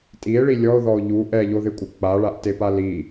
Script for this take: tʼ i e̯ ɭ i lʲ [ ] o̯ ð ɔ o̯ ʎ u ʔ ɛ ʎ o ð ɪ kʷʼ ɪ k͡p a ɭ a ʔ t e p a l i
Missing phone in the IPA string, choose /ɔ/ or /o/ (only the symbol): ɔ